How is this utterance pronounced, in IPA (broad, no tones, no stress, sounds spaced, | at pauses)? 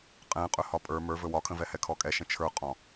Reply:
qʼ ɛ̃ qʼ ɵ h ɒ pʼ ə˞ m ə˞ v ɵ w ɒ kʰ ə̃ v ɛ h ɛ kʰ ɔ kʼ ɛ ʃ ə̃ t͡ʃʰ ə˞ qʼ ɔ̃